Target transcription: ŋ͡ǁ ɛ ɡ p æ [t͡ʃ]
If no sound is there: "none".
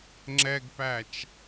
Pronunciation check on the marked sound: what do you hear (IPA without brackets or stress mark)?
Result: t͡ʃ